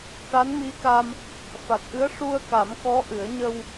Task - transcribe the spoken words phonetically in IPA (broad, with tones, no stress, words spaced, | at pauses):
ʈa˧˥nmi˧˥ka˧m | fa˨˩t̚ʔɨ˧˥ə̯ʂu˧ə̯ka˨˩˦m kɔ˧˥ʔɨ˨˩˦ə̯ ɲə˧w